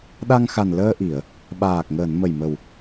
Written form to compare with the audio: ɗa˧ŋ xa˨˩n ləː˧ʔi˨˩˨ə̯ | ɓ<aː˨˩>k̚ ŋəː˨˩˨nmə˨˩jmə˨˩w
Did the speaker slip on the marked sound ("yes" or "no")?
no